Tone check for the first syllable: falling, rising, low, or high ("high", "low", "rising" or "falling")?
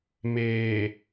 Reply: low